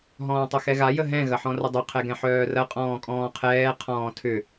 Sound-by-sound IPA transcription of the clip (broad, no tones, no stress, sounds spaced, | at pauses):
ɦ ɔ̃ː tˤ ɐ x ɛ ɣ a j ə ɦ ɛ̃ ɣ ɐ ħ ɔ̃ r ə dˤ ʊ qʰ ɛ ɡ ɛ̃ ħ œː r ɐ qʼ ɔ̃ː kʼ ɔ̃ː qʰ ɛː qʰ ɔ̃ː tʰ ʏ